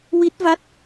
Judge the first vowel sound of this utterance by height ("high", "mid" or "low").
high